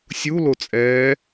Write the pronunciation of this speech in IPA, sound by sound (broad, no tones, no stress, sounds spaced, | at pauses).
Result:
sʲ u l o t͡sʼ ɛː